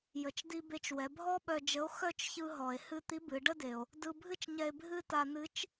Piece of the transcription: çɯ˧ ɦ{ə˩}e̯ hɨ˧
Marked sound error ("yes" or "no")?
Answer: yes